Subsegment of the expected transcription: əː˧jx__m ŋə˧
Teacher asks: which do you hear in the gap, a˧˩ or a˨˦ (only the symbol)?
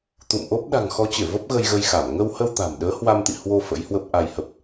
a˧˩